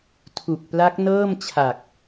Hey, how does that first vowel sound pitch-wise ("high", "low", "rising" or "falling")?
low